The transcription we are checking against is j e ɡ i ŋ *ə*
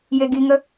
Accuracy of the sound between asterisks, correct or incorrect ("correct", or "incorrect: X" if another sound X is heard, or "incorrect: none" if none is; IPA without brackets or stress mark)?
correct